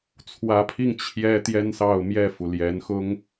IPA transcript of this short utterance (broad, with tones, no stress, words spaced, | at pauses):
t͡sʰwä˧˥pʰi˥˩ŋ t͡ɕʰjɛ˥t̪jɛ˥nsɑ˥˧ʊ̯ mjɛ˥˩fu˩ljɛ˧˥nxʊ˥ŋ